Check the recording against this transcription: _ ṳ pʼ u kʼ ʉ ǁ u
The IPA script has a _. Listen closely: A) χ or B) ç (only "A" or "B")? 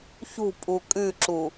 B